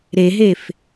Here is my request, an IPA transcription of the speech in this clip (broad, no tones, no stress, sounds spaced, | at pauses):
ɾ e ɦ e f